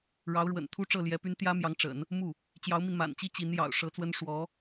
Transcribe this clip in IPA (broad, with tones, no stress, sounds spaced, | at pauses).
ɻ ɑ˧˥ ʊ̯ ɻ w ə̰˨˩ n t̪ʰ u˥ ʈ͡ʂ ɤ˥˩ l j ɛ˧˥ p y˥ n t̪ j ä˥ m j ɑ˧˥ ŋ ʈ͡ʂ ə̰˨˩˦ n | m u˥˩ | t͡ɕ j ɑ˧˥ ʊ̯ m i˧ n m a̰˨˩ n t͡ɕ i˥ t͡ɕ i˧˥ n j ɑ̰˨˩ ʊ̯ ʂ ɤ˧˥ t͡s w ə˥ n ʂ w ɔ˧˥